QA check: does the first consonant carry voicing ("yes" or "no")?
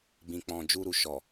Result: yes